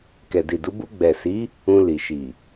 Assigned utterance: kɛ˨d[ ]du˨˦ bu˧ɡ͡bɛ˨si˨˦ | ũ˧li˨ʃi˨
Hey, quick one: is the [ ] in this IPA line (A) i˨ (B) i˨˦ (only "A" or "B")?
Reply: A